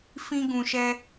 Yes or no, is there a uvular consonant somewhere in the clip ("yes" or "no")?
no